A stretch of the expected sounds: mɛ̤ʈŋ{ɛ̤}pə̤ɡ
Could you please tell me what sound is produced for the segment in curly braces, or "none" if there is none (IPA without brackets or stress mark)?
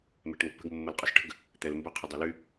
ə̤